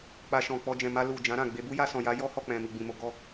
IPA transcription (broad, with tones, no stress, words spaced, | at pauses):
k͡pa˧ ʃɔ̃˨k͡pɔ˧d͡ʒɛ̃˨ ma˧ lu˨ d͡ʒã˨˦ɾã˦˨ɡ͡be˧ bu˦ja˧sɔ̃˨ja˨˦ jɔ˦hɔ˦˨k͡pɛ̃˨ mi˨ɡ͡bĩ˨mo˧ ɡɔ˦